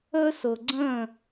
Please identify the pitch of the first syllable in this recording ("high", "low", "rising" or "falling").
high